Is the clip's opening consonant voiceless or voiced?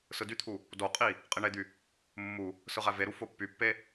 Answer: voiceless